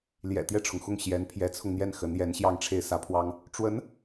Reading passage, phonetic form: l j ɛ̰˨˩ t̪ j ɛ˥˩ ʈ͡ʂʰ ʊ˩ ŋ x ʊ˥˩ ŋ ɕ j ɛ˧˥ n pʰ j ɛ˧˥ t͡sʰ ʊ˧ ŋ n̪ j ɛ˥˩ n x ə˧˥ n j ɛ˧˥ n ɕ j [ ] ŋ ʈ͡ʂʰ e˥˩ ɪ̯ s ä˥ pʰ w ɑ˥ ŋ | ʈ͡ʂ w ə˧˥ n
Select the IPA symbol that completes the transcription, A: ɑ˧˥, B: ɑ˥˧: B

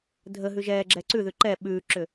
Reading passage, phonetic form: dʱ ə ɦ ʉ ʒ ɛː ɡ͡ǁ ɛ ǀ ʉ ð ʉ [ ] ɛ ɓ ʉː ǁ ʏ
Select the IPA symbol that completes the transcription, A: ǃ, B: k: A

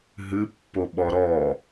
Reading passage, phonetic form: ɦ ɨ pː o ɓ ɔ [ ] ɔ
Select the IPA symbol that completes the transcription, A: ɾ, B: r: A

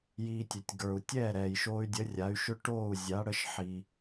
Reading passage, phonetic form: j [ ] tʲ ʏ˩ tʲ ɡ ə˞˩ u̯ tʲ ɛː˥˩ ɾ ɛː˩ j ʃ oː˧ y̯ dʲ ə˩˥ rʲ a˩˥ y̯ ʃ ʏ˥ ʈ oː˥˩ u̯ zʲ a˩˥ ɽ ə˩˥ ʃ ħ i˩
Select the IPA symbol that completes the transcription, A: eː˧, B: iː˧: B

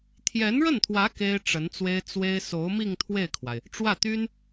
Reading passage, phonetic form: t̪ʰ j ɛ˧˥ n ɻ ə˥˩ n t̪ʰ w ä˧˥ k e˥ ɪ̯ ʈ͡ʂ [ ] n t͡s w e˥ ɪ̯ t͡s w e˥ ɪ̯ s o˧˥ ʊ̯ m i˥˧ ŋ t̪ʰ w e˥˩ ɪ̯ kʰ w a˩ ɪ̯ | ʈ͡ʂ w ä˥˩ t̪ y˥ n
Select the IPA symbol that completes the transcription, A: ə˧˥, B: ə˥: A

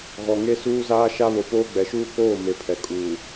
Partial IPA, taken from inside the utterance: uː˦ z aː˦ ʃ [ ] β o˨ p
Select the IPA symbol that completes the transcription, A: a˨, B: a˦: B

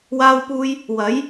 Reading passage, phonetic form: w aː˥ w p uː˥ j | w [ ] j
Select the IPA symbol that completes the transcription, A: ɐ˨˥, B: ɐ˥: A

